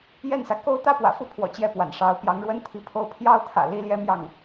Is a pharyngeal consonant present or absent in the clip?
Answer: absent